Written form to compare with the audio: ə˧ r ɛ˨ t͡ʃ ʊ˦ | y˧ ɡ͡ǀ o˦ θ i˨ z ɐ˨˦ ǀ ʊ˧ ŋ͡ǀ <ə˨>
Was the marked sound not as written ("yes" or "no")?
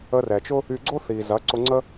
yes